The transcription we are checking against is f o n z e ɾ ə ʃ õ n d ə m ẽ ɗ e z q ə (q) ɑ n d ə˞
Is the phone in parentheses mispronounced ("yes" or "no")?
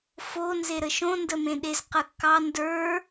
yes